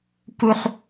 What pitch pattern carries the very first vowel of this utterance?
high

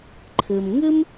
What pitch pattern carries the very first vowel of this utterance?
low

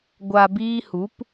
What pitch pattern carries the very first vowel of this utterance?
low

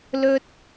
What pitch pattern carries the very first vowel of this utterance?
high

